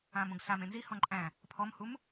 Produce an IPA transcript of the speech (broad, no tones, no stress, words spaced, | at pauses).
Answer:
ãm ũɡsam ẽnzi hɔ̃ǃʼæ̃ | pʰɔmhum